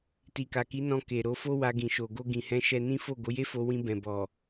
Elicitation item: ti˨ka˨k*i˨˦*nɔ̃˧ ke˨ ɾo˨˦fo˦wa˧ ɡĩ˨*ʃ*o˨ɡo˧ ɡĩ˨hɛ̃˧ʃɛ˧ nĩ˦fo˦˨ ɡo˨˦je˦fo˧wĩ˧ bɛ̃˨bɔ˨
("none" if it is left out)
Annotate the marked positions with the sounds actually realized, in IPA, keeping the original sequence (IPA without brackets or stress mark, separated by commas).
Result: i˨˦, ʃ